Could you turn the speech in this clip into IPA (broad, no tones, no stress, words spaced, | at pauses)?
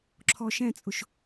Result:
ǁʰɔʃɛ̃t͡sʼʊʃ